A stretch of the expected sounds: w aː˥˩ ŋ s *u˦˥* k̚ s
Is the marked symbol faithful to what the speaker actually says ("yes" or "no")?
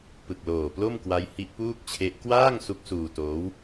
yes